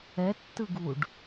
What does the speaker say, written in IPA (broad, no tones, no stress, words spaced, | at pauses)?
ɛtːɯɡuɖ